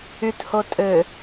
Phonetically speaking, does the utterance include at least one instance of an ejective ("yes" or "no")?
yes